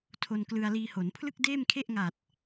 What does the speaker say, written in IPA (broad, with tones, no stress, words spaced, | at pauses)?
tʰo˧nklɯ˧a̯liː˧ho˩˦n pʰlɯ˥˩k̚deː˥˩mkʰe˥˩ʔŋa˨˩t̚